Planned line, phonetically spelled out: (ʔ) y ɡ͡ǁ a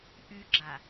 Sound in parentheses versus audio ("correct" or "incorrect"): correct